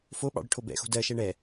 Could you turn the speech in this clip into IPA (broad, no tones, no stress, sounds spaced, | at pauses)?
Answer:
f o ɓ ɑ̰ ɽ ɨ ʈʰ o b ɛ̰ x o̤ d ɜ ʃ ɛ ɳ ɛ